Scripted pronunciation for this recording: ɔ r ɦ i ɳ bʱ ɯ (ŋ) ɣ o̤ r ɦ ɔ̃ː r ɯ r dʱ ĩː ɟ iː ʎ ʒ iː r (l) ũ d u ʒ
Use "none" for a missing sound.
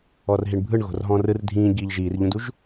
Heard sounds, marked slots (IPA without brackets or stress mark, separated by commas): ɳ, ʎ